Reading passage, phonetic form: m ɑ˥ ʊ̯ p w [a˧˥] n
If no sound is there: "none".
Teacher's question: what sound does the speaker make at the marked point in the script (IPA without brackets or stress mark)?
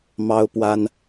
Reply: a˥